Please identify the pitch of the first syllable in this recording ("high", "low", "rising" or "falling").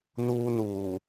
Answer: high